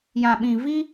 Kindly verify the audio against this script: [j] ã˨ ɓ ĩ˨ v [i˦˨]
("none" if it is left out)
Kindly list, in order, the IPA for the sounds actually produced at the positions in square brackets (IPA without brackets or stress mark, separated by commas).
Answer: j, i˦